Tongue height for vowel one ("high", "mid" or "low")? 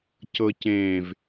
mid